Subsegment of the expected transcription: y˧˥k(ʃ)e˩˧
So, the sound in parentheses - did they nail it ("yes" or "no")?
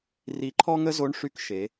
yes